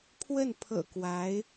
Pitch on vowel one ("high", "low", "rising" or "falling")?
falling